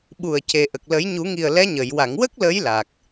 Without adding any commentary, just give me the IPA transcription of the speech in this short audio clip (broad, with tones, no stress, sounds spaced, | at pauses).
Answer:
ɓ u˨˩ ə̯ c e˨˩ ʔ ə˨˩ k̚ l ə˨˩˦ j ɲ u˨˩˦ ŋ i˨˩ ə̯ l ɛ˧˥ ɲ ə˨˩˨ j w a˨˩˨ ŋ w ə˦˥ k̚ l ə˧˥ j l a˨˩ k̚